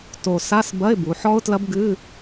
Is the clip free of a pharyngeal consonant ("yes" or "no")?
no